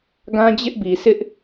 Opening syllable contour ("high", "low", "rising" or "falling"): high